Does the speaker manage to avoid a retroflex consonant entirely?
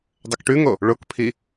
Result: no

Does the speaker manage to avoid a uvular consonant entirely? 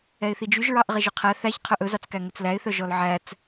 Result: no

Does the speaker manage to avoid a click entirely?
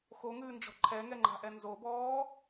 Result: no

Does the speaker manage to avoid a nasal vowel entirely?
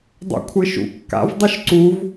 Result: yes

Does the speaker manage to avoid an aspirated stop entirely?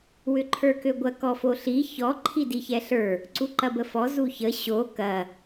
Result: no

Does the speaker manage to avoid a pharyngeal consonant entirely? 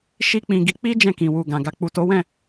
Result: yes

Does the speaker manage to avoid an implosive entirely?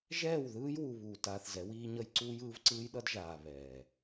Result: no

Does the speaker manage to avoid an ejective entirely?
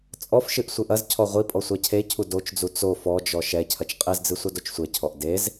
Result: no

